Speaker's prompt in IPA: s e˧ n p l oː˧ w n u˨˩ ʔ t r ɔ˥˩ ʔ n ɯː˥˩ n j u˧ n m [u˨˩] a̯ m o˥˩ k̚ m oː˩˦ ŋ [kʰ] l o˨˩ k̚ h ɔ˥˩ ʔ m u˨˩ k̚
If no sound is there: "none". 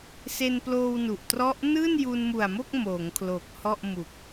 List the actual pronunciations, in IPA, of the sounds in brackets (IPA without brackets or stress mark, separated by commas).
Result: u˨˩, kʰ